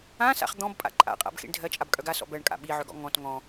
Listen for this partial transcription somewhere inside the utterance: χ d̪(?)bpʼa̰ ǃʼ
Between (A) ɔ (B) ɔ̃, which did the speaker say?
B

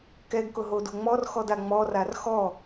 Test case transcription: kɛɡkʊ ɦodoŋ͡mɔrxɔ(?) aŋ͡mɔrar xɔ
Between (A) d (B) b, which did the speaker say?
A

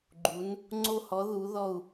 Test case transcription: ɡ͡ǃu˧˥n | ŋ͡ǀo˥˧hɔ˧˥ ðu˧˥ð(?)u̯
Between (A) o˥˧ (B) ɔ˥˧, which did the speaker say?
B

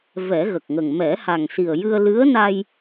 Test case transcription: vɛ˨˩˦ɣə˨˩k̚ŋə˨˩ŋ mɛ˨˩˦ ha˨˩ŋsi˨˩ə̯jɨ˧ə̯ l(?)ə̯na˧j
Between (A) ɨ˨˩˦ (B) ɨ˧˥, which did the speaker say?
B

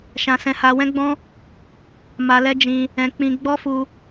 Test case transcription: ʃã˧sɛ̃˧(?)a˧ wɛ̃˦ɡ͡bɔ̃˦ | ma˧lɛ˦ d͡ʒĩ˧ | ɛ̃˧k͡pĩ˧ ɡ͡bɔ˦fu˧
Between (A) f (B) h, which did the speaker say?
B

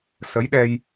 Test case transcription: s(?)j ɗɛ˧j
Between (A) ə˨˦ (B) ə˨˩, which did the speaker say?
A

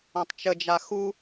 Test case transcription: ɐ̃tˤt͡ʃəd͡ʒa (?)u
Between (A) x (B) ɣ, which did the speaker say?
A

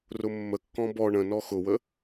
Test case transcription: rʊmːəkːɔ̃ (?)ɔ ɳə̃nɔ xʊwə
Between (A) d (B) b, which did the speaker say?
B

